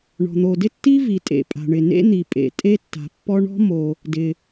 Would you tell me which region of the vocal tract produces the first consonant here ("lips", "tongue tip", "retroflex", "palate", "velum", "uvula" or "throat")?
retroflex